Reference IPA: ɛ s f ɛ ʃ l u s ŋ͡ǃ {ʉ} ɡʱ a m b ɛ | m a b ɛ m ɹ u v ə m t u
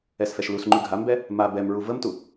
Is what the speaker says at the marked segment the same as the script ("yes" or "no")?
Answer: yes